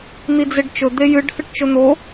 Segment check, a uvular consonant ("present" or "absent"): absent